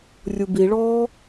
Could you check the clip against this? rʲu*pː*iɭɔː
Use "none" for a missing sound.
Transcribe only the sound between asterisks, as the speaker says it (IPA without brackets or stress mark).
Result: b